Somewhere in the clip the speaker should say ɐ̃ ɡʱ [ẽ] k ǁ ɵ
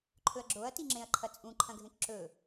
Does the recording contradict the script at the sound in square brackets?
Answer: no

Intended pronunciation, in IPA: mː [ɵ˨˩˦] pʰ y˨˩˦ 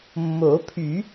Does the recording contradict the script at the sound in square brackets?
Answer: yes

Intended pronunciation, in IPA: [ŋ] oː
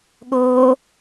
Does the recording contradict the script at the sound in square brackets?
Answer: yes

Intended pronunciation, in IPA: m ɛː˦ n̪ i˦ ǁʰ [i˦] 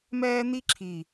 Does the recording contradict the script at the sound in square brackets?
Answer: yes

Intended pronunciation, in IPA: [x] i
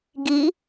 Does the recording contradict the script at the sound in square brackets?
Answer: yes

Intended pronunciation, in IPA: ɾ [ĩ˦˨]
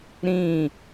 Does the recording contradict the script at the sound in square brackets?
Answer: no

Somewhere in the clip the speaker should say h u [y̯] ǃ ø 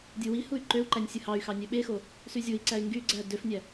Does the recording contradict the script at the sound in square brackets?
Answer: no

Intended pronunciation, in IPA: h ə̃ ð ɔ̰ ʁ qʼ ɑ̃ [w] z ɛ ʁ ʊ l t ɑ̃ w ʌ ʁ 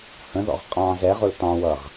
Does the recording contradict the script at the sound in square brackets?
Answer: yes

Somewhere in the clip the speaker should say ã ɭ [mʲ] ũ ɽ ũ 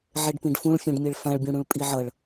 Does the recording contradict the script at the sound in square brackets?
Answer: yes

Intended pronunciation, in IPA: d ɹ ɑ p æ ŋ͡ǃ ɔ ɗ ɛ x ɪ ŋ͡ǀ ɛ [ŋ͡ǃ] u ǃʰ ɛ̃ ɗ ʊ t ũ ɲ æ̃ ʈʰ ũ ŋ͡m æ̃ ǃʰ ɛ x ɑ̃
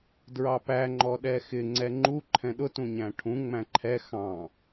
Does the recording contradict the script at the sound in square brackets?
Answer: no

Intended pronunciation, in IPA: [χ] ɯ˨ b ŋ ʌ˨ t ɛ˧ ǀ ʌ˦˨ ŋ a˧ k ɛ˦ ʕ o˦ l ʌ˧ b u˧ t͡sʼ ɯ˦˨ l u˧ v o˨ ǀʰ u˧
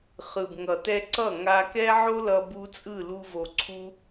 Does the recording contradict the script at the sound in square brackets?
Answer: no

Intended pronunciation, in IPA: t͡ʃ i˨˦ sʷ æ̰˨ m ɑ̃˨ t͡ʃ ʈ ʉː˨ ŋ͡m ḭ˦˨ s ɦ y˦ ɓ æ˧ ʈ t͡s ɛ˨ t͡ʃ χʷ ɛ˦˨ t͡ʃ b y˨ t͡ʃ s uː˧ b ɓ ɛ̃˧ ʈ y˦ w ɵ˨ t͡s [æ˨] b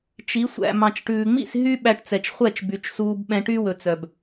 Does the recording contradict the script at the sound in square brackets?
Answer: yes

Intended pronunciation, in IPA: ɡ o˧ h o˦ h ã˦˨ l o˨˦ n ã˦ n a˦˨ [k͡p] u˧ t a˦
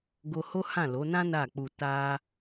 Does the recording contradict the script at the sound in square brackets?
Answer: no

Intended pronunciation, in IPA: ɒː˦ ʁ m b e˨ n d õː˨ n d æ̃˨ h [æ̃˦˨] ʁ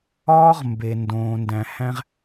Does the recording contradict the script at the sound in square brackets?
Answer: yes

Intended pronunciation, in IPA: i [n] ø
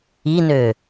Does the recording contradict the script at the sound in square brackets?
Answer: no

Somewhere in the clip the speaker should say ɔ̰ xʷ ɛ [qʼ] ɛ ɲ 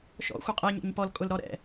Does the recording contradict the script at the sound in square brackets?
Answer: no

